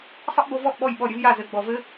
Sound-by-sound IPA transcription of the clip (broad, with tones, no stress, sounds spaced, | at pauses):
sˤ ə˦ ʔ b o˧ v ɔ˦˨ ʔ ɓ ɔ˦˨ j ɓ ɔ˦˨ ɾʲ ɘ˦ v j a˦˨ z ɘ˨ ɡ͡b ɔ˨ v ɘ˦